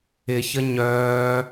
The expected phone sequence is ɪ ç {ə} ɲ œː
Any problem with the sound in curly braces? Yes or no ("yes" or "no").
no